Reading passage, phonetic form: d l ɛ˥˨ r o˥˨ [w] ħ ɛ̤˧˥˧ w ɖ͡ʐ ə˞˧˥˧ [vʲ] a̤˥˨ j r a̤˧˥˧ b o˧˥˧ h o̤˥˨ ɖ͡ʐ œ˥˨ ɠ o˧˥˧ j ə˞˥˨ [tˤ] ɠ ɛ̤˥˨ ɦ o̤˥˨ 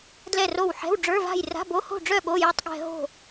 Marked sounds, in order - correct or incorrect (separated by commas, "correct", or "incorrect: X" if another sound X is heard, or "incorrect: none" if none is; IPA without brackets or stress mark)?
correct, incorrect: v, correct